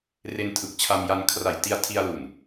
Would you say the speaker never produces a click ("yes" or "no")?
yes